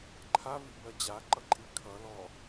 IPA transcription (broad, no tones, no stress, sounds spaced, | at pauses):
ǃʰ a v i b ɜ d͡ʑ a ǃ ʌ ǃʼ i kʰ ʌ l ɔ